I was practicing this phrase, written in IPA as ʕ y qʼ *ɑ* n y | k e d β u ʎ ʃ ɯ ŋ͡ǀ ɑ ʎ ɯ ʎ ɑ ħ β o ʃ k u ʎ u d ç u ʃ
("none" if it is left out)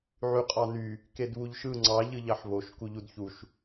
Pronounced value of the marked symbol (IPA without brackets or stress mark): ɑ